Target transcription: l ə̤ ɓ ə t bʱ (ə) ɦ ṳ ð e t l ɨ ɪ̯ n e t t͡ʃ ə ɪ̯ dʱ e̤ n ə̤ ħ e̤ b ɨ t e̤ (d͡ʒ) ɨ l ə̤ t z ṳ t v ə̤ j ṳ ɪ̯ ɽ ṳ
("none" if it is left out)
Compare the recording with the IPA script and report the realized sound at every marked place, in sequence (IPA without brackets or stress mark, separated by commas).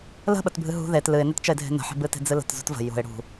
ɨ, d͡z